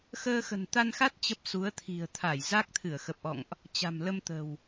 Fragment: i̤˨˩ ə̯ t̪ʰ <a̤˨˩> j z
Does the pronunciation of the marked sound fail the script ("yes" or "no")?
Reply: yes